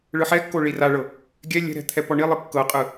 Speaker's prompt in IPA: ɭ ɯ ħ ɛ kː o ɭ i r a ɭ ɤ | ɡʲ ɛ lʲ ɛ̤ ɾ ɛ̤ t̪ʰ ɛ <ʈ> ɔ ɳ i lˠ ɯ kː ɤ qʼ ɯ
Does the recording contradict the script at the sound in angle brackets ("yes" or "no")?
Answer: yes